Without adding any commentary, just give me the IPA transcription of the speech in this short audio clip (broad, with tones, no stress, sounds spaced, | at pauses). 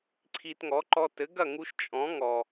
ǀʰ i˧ t ŋ ɔ˩˥ ǃ ɔ˧ t ɘ˩˥ ɡ ɐ˥˩ ŋ u˧ ʃ t͡ʃʼ ɔ̃˩˥ ŋ ɔ˩